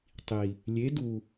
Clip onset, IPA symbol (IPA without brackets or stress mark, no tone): tˤ